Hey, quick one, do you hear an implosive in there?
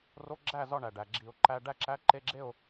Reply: no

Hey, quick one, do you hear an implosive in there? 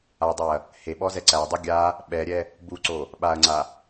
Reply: yes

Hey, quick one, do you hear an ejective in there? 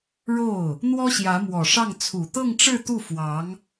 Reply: no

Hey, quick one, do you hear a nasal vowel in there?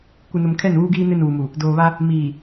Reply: no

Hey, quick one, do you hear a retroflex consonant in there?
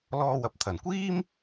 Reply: no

